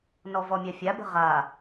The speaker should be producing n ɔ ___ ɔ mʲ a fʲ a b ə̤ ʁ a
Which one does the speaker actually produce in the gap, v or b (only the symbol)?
v